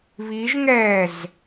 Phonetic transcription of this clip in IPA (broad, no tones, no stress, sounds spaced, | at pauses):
β i ʒ ŋ ɛː z